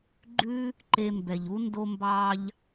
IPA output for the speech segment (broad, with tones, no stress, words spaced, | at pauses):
ɡ͡ǃʉ˥ | ǃe˧mbɛ˩ʎu˥ ndo˧mbɑː˧ʎ